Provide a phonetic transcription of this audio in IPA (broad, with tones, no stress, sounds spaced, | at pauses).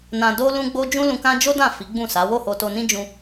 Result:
n ã˧ d o˦ l ũ˦ ɡ͡b o˦ d͡ʒ ũ˦ l ũ˧ k ã˦ d͡ʒ o˦ d ã˦˨ f i˨˦ ɡ͡b ũ˦˨ s a˨˦ w o˦˨ h o˧ t o˧ n ĩ˦ d͡ʒ ũ˧